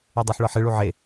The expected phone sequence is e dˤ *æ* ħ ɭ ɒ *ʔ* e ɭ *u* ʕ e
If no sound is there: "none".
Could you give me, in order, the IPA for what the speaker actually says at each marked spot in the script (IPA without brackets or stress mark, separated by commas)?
æ, ħ, u